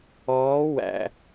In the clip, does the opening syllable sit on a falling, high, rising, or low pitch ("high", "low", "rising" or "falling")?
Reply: rising